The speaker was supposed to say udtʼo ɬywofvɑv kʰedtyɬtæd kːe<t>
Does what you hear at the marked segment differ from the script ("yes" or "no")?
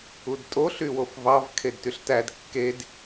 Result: yes